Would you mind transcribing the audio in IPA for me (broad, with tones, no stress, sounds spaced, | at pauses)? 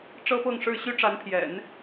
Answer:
ʈ͡ʂ ɤ˥ p ɤ˥˧ ŋ ʂ ɻ̩˥˩ ɕ y˥ ʈ͡ʂ a˧˥ n pʰ j ɛ̰˨˩˦ n